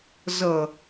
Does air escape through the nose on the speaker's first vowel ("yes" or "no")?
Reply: no